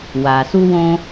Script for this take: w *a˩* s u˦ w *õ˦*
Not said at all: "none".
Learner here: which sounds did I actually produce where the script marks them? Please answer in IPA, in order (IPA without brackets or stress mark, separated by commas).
a˩, õ˦